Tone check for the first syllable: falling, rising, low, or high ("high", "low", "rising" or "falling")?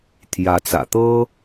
rising